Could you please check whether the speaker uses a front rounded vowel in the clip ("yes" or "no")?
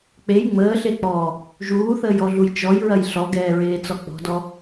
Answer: no